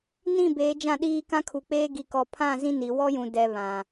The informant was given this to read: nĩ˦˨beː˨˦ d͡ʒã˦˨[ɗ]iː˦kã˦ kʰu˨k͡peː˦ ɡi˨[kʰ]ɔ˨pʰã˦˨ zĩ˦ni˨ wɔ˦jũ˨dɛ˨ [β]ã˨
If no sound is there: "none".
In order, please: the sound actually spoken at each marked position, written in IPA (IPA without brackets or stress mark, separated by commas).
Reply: ɗ, k, β